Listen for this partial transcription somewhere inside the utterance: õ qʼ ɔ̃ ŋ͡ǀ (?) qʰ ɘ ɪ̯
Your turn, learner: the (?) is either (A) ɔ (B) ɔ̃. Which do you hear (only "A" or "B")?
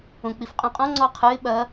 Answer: A